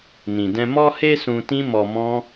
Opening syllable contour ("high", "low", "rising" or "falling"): low